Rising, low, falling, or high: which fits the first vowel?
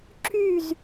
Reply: falling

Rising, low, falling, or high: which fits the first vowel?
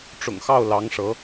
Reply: low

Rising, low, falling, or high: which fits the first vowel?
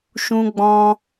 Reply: high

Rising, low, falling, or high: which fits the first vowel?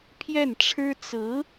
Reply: falling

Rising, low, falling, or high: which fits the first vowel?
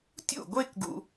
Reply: falling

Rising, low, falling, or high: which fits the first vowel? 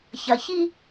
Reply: low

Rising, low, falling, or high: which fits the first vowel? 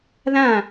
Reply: falling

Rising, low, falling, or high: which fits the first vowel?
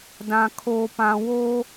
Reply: low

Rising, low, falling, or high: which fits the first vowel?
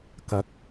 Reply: rising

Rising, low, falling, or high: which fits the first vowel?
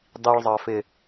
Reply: low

